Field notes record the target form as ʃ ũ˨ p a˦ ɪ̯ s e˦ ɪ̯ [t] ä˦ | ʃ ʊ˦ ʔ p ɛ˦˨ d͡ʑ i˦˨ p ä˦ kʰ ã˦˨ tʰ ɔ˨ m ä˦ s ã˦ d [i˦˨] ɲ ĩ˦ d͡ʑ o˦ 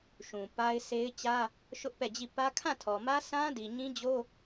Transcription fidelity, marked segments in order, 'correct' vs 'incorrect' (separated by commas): incorrect, incorrect